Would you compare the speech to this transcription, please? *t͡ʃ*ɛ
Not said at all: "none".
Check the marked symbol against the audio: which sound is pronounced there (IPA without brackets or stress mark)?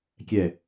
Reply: kʲ